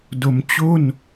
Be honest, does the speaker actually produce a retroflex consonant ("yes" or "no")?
no